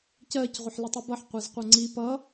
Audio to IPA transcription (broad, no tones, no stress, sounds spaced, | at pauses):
c ɜ c ʁʷ ʌ ħ l ə tˤ ʌ b ʌ ħ qʷ ɜ z qʷ ʌ ŋ͡ǀ i p ʌ